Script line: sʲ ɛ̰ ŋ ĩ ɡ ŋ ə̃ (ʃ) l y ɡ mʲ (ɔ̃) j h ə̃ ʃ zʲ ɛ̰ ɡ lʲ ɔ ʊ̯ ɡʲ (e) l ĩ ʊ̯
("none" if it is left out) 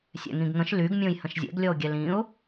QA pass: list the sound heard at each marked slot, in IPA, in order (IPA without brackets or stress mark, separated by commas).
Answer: ʃ, õ, ɛ